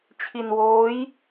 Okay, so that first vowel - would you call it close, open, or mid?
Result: close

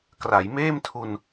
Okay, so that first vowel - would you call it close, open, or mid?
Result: open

